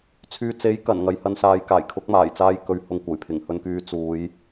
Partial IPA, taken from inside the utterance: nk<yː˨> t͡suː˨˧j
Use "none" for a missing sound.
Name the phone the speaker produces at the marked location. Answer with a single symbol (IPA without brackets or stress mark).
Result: yː˧